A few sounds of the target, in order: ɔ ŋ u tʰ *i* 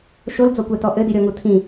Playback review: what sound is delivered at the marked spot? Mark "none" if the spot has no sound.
ĩ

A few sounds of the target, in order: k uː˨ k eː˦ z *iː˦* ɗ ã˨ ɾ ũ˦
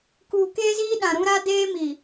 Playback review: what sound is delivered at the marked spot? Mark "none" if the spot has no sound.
iː˦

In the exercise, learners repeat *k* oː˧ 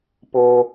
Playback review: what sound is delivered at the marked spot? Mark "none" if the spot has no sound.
p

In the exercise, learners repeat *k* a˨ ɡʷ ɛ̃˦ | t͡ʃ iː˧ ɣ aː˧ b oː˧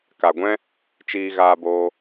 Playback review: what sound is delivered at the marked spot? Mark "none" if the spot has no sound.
k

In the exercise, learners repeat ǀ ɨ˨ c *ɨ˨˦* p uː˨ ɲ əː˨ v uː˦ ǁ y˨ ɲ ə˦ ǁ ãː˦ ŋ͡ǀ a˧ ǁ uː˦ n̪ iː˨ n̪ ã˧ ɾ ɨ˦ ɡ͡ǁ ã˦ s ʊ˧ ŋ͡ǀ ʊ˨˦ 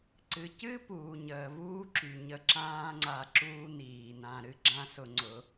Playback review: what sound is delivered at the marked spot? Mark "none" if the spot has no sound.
ɨ˦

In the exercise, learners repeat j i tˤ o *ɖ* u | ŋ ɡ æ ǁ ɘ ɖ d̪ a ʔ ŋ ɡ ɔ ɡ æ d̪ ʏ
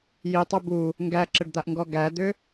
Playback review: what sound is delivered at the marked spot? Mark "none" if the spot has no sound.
b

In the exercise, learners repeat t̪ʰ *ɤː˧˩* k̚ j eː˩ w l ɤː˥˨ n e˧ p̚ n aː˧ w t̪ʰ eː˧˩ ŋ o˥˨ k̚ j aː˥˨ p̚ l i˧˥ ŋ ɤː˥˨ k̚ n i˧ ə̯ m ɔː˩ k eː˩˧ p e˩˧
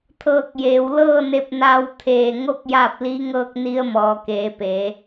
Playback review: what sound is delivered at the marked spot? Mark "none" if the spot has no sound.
ɤː˧˩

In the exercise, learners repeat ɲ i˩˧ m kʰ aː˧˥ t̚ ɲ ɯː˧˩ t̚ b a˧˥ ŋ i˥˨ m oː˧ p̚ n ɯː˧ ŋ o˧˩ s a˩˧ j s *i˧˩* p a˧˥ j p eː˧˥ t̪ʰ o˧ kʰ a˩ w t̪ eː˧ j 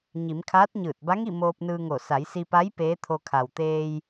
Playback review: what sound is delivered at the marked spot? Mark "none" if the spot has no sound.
i˧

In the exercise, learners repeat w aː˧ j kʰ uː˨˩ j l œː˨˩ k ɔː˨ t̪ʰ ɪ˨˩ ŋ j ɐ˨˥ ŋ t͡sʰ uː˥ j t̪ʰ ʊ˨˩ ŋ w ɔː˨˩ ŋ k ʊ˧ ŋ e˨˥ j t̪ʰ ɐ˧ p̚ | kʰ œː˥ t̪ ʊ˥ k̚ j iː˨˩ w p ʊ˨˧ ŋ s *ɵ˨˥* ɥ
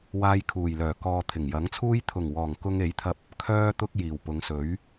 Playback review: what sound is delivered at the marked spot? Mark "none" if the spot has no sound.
ɵ˨˥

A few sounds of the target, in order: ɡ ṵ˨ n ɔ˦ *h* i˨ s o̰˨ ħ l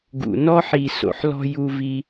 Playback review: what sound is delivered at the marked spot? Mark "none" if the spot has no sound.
ħ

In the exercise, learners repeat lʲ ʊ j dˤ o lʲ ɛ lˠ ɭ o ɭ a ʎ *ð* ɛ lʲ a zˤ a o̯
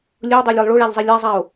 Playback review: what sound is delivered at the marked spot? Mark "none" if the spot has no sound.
zˤ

